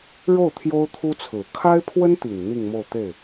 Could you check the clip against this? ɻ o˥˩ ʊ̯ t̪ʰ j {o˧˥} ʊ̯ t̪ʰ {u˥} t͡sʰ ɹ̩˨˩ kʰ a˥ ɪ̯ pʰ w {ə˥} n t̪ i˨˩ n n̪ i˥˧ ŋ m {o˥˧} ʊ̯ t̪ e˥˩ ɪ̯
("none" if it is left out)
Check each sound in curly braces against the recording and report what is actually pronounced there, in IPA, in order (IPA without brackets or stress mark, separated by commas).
o˥, u˥, ə˥, o˥˧